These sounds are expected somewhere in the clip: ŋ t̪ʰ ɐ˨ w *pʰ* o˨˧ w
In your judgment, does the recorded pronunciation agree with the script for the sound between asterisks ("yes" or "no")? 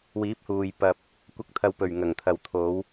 no